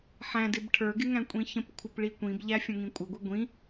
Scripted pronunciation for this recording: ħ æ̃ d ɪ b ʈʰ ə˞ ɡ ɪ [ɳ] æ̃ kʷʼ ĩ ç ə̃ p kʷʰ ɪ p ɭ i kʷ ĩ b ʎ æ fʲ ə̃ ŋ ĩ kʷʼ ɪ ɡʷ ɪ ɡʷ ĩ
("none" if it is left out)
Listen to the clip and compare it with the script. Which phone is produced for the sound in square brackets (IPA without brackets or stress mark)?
ŋ